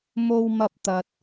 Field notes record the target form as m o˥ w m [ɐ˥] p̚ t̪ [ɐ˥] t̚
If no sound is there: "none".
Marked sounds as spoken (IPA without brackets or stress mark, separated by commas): ɐ˥, ɐ˧